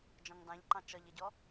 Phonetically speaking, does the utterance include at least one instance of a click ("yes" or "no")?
yes